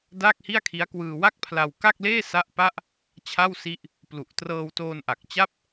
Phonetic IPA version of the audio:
daː˥˩k̚hi˥˩a̯kʰi˦˥a̯ kwɯː˧wa˥˩k̚pʰla˧w ka˥˩k̚leː˥˩ sa˥˩ʔpa˥˩ʔ | t͡ɕʰa˥˩wsi˦˥ʔ | plu˨˩ʔ trɤː˧wtoː˧nʔa˨˩k̚ t͡ɕa˥˩p̚

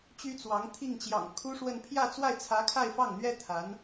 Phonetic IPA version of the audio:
t͡ɕy˥t͡swɑ˧˥ŋ t̪ʰi˥˩ŋt͡ɕjɑ̰˨˩ŋkʰu˥ʂwə˥˧n pʰjä˥˧t͡swa˥˩ɪ̯t͡sʰä˧˥ kʰa˥˧ɪ̯fɑ˥˩ŋn̪ɥɛ˥ t̪ʰa˧˥n

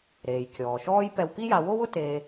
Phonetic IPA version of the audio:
ɾeː˩jkʲɔː˩ʃɔː˥j pɛ˧wpi˥ja˧ wo˥wʊ˥ teː˧

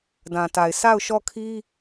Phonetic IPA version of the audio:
dã˨ta˨ɪ̯ sa˦˨ʊ̯ʃɔ˦˨kʰi˦

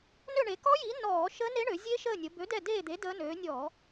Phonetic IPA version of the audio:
nø˦˨ɳe˩˧kɔ˦˥jiː˨˥ nɔː˧˩˧ ʃəː˦˥ne˦˥ɳø˩˧ zʲe˦˥ʃəː˦˨nʲə˩˧ bø˨˥dɛ˦˨deː˦˨d̪e˨˥ dəː˦˥nøː˨˥ nʲɔː˧˩˧

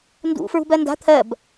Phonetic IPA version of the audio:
ndṵ fɹṳbɜnda̤ t̪ʰɜb

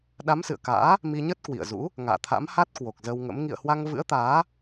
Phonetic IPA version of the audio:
ɗa˨˦msɨ̰˧˨ə̯ka̰ː˧˥ | mi˧ɲə˦˥t̚kwḭ˧˨ə̯zṵ˧˥ | ŋa̰ː˧˨t̪ʰa̰˧˥mha˦˥t̚ kwo˨˩k̚zə˧wŋə̰˧˥m ŋḭ˧˨ə̯hwa˧ŋvɨ̰˧˥ə̯t̪aː˨˦

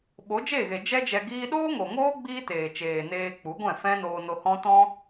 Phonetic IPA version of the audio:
ɓo˨˦d͡ʒeː˦˨ɣe˨ d͡ʒɛ˦d͡ʒɛ˧ɡiː˦ ɗoː˦ŋo˨ŋoː˦ ɡ͡biː˦teː˨t͡ʃeː˨ neː˧k͡pu˨˦ɡʷɛ̃˦˨ fɛ̃˦ noː˧no˧hɔ̃˦tɔ̃˦

